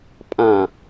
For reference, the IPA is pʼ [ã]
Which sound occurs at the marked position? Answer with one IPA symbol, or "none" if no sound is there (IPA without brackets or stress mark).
ã